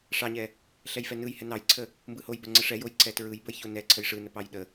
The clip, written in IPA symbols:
ʂ ɑ ɲ ɛ | ɬ ɛ j f ɛ n ɯ j h ɛ n ɑ j ǀʰ ə | m b ɯ h o j b ə ŋ͡ǀ ə ʂ ɛ j o j ǀ ɛ t ɹ ɯ j b ə j ç o n ɛ ǀʰ ə j ʂ ɯ n ə p ɑ j ɗ ə

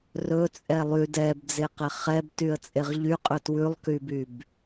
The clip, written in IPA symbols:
r ɵ t͡sʼ ɛ lˠ y d ɛ b d͡z e q ɛ χ ɛ b t y ə̯ t͡sʼ e ʁ ʎ y qʼ ɵ t w ʉ lˠ k y b y b

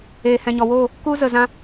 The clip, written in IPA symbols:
eː˨ h ɛ̃˨ ɲ ɔ˨ w oː˦˨ | k u˦ z ə˨ z ã˦

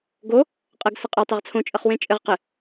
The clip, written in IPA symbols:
ɡ o | qʼ ə ɡ s ə qʼ ɘ tˤ e ʁ t͡sʰ õ t͡ʃʼ ə χ w ẽ t͡ʃʼ ɘ ʁ q ɘ

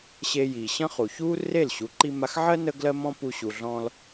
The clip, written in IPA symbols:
ɕ e˧ j i˩ ɕ ə̃˥ χ u˩ ç u˥ r e˥˩ l ɕ u˩˥ ǃ i˧ m a˧ x ʕ ɜ˥ n ə˥ ɡ l ɜ˥ m ɔ̃˥ p u˧ ɕ u˩ ɮ ɔ̃˧ l

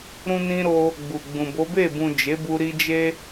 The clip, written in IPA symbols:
ɾ ũ˧ n ĩ˧ ɾ o˧ | ɡ͡b u˨ ɡ͡b ũ˨ b o˨˦ b e˦˨ b ũ˨ d͡ʒ e˨˦ b u˧ ɾ i˧ d͡ʒ e˦

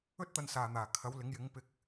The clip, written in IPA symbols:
ɵ˥ t̚ t̪ ɐ˧ n s aː˨ n̪ aː˨˩ kʰ ɐ˨˥ w l ɪ˨˥ ŋ j ɪ˨˥ ŋ p ɪ˧ k̚

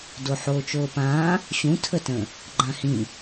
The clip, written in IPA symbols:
d o ħ oː t͡ʃ oː p ãː | ɕ ũ tʰ ə t ə̃ | ɡ͡ǃ ã h ĩ

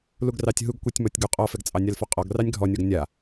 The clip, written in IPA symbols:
l u ɡ r ɑ tʲ ɦ u ɡ kʷ ɛ tʲ m ɔ tʲ ɡ u qʼ ɔ f ɛ ɡ t͡sʼ ɑ nʲ a l f ɔ qʼ ɔ ɡ r ɑ nʲ ɡʱ ɔ nʲ ɔ ɡ nʲ a

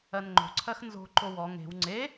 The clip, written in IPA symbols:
ɜ n ŋ͡ǃ o̤ ǀʰ ɜ x n z o̤ ǃ o w ɔ ŋ e̤ w ŋ͡ǀ e

